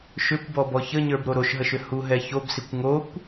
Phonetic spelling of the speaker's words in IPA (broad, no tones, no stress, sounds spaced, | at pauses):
ʃ ʏ kʷ b ɔ b ɔ ç ə ɲ ə˞ b ɾ o ɾ o ʃ ɦ ə ʃ ʏ h u ɦ ɛ ç o b s i kʷ ŋ o kʷ